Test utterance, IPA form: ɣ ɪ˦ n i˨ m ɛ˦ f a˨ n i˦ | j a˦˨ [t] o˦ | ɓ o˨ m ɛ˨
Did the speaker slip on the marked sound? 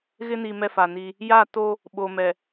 no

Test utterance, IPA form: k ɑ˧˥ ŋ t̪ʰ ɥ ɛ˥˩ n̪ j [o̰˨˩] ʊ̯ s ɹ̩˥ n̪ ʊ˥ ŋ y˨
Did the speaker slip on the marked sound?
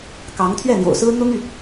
no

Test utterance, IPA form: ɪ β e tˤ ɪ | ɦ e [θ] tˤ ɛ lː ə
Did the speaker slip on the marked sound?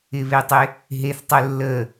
no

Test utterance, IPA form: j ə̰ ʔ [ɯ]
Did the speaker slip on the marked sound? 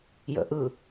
no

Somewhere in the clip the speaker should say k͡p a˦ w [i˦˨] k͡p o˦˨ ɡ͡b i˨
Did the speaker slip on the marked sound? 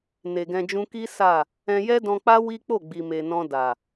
yes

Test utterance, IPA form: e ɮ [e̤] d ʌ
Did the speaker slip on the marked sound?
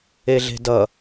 no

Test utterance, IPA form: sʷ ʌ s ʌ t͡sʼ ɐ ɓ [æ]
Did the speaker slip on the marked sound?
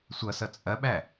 no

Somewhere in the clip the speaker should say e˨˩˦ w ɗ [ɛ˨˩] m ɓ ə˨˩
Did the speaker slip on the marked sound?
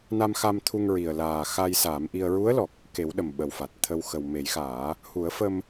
yes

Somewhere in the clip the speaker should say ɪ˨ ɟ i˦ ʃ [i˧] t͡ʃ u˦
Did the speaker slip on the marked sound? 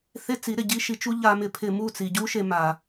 no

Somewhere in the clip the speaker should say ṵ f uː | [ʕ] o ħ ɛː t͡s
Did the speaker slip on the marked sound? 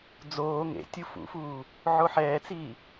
no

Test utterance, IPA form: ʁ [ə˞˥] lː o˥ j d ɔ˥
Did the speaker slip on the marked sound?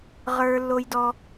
no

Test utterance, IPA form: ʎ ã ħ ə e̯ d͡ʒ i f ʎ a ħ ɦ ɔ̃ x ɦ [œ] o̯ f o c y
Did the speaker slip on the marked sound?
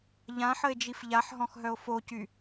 no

